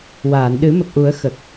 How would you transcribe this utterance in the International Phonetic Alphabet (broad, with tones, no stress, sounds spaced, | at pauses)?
w aː˨˩˨ n ɗ ɨ˨˩˦ m ə˨˩ k̚ ʔ u˨˩˦ ə̯ x ə˨˩ k̚